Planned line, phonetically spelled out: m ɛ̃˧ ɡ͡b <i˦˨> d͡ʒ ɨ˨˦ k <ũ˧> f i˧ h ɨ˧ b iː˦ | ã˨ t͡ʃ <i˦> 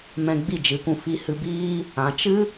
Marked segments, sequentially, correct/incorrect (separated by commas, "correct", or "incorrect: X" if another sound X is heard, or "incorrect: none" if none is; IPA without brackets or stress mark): correct, correct, incorrect: ɨ˦